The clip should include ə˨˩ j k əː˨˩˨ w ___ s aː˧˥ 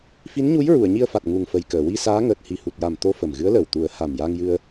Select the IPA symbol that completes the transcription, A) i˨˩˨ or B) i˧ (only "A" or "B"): B